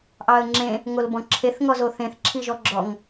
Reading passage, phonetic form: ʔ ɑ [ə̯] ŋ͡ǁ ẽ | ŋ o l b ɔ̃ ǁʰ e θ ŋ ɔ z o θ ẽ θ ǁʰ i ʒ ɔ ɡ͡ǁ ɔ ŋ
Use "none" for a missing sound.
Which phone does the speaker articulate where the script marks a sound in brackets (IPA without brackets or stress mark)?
ə̯